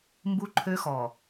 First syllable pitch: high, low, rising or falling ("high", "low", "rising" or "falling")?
high